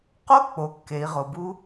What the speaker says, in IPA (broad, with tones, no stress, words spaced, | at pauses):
qo˦˥k͡po˩˧ kːe˩˧i̯ʁo˩bu˦˥